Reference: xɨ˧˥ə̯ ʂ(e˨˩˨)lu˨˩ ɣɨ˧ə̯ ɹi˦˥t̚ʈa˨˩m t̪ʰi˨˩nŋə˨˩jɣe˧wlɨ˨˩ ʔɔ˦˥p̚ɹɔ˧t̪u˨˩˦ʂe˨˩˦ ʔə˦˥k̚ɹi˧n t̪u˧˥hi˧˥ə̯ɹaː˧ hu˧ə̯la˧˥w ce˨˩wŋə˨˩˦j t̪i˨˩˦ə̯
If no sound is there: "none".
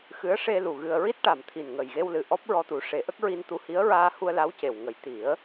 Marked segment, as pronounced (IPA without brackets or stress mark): e˧